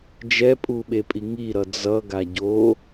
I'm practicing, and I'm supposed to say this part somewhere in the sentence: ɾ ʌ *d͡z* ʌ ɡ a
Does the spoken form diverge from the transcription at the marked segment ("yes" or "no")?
no